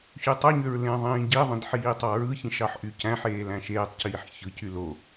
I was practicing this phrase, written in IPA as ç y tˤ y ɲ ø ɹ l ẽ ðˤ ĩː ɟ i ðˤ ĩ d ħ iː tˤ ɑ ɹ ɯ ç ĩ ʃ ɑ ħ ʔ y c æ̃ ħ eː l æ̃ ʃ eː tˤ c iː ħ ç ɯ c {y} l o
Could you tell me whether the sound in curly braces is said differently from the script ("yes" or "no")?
no